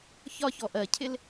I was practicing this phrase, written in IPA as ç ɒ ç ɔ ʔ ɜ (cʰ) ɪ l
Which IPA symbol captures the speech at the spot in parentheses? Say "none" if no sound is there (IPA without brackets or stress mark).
cʰ